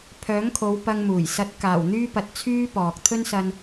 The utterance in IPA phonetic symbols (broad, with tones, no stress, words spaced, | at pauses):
pʰœː˨˥ŋkʰo˨˧w pɐ˧ŋmuː˨˩j sɐ˨˥t̚ kaː˨˩wn̪yː˥pɐ˨t̚ t͡sʰyː˥pɔː˨k̚ t̪ʰɵ˥nsɐ˧n